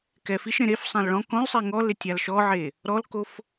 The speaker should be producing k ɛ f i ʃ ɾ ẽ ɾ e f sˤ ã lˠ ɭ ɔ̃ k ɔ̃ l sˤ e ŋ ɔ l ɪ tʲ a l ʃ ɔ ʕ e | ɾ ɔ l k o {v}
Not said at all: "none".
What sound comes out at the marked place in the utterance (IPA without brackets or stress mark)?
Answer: f